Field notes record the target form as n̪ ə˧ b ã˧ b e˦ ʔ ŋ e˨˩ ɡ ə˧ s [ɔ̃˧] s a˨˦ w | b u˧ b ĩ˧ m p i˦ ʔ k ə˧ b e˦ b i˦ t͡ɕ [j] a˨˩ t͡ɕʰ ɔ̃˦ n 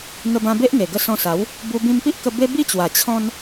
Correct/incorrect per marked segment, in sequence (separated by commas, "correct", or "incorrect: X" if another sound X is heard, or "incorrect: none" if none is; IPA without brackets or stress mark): correct, incorrect: w